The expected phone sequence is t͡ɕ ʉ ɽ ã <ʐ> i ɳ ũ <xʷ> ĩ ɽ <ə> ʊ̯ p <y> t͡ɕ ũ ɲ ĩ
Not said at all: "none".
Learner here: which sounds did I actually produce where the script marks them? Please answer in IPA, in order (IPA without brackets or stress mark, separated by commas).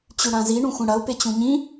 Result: z, xʷ, ɐ, e